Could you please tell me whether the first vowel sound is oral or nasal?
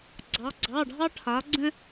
oral